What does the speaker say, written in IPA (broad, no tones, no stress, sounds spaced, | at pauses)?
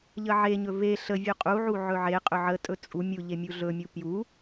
ʎ ə ʕ e ɲ ɵ v e ɬ ə vʲ u qʼ u ʕ u ʕ ɵ ʕ e qʼ ɵ ʕ ə tʼ ɵ t͡sʼ u mʲ u ʎ e mʲ u ɮ ɵ mʲ u p j u